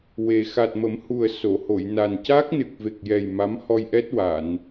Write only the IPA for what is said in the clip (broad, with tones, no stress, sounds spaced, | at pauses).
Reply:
w e˨˩ x a˨˩ t̚ m ə˨˩˦ m h u˨˩ ə̯ s o˨˩˨ h o˨˩˨ j n a˨˩ n c a˦˥ k̚ n ɨ˨˩ k̚ v e˨˩ k̚ j ɛ˨˩ j m a˧˥ m h ɔ˧ j ʔ ɛ˦˥ t̚ w a˨˩˨ n